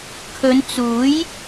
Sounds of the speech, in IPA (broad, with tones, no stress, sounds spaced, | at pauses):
kʰ ɵ˨˧ n t͡s uː˨˥ j